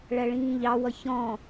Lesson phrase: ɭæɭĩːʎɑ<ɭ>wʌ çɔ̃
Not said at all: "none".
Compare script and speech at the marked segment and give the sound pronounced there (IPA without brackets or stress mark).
none